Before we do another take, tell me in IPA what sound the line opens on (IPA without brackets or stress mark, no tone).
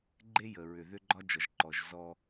ɡ͡ǃ